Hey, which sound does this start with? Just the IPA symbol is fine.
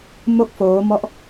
m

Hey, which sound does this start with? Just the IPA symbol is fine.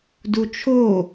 d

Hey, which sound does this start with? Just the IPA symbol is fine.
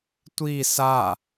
tʷ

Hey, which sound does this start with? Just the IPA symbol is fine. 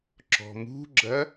ǁ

